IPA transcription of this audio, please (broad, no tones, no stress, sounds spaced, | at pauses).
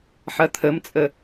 ħ ɐ t̪ʰ ə m t͡sʼ ə